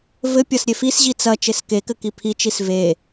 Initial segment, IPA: v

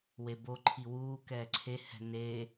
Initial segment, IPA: w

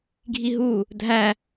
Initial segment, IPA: ɡʱ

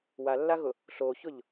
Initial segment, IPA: w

